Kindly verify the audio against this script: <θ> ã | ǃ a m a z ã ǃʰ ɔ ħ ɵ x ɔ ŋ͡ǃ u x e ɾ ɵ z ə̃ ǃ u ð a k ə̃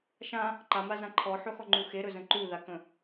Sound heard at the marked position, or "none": ʃ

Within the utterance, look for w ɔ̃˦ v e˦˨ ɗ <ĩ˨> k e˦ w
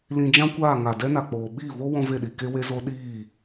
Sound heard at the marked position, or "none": i˨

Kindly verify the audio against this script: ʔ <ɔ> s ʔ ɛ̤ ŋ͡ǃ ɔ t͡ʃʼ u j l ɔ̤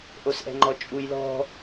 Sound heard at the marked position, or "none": o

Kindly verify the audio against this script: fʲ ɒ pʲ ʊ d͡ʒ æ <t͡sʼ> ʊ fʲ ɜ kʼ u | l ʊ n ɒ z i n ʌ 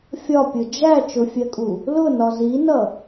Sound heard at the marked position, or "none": t͡ʃ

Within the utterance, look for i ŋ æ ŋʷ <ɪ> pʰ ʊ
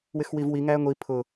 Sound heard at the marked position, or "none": i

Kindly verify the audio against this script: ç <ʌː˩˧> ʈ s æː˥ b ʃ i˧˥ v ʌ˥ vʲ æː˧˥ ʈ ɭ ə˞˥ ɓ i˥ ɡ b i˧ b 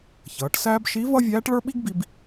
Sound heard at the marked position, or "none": ʌː˩˧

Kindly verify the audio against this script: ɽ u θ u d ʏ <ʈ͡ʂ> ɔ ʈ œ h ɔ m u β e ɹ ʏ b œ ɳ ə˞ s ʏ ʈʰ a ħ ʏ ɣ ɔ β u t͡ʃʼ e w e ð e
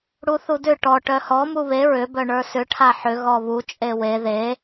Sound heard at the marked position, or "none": ʈ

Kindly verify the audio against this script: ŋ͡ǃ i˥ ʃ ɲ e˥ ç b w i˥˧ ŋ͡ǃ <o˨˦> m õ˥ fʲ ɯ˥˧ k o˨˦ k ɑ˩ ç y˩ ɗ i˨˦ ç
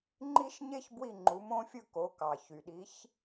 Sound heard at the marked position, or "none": u˨˦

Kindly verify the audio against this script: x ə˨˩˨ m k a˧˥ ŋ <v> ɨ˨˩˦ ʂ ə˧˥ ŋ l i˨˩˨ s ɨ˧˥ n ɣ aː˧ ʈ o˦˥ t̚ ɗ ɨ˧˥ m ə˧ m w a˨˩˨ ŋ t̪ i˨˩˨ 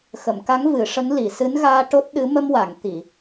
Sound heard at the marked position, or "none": v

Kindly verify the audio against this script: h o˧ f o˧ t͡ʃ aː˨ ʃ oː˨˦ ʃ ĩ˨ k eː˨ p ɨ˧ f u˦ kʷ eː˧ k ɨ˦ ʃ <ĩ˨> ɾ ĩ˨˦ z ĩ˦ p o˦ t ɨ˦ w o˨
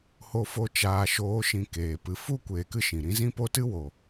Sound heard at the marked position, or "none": ĩ˨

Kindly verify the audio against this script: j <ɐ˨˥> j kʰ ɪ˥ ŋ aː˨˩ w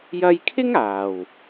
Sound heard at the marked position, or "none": ɐ˧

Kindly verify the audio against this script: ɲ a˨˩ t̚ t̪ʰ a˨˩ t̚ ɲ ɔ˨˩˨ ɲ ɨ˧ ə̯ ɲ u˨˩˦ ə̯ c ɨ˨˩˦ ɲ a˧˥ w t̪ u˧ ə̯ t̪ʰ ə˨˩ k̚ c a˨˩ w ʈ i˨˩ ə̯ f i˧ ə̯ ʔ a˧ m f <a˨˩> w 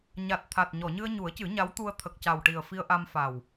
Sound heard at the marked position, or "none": a˨˩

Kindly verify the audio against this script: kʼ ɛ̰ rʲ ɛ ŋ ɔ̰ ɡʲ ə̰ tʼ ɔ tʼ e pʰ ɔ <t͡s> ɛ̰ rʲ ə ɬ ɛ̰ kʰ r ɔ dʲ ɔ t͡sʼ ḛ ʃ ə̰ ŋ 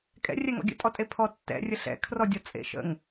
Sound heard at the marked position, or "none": tː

